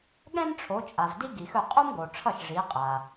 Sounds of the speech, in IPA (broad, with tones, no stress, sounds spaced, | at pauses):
ɠ ɛ̃˥ n ʈ͡ʂʰ o˨˦ t͡ʃʼ a˨ v d i˥ ɡ i˨ x ɵ˥˩ qʼ o˥ m ɡ o˨ ʈ͡ʂʰ ʌ˥˩ ʃ ʐ i˨˦ qʼ a˨